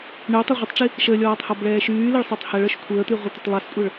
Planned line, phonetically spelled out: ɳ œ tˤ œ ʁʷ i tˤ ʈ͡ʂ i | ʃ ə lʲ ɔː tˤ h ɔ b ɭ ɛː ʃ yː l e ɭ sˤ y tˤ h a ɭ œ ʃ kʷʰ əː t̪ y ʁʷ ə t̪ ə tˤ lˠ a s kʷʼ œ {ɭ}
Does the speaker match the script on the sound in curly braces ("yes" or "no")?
yes